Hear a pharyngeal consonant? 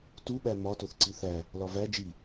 no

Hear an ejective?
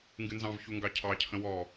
no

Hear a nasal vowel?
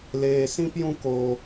yes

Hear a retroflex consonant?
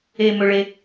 yes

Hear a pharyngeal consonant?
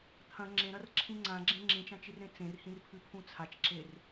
no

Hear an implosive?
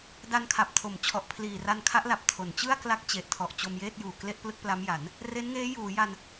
no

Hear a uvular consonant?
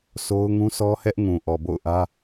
no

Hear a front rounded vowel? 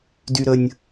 yes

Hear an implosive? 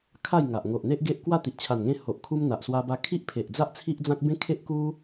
no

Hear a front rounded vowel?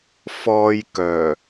yes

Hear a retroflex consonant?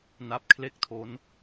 no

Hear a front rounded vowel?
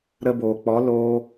no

